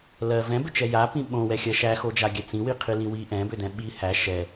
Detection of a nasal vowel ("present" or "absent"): present